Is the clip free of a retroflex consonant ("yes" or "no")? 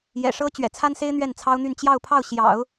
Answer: no